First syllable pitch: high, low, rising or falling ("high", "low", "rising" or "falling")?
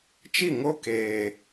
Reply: falling